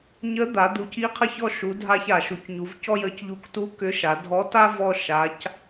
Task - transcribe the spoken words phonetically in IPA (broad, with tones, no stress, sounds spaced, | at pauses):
ɲ ə˧˥ d̪ a˩˧ d̪ u˩˧ c i˧˥ qʰ ə˧ ç ɔ˧ ʃ u˩˧ dʱ a˧ ç a˩ ʃ u˩˧ c ɲ u˩˧ v c ɔ˥ j ə˧˥ c ʎ u˧˥ k t u˧˥ k ʏ˧˥ ʃ a˩˧ dʱ ɔ˧˥ t a˥ v ɔ˥ ʃ a˧˥ c